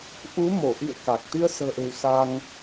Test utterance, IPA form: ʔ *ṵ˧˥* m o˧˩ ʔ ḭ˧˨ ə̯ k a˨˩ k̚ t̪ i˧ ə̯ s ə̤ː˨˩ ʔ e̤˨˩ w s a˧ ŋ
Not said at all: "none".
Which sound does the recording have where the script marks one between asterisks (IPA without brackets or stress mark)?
u˨˦